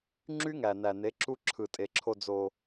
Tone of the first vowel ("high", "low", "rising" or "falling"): high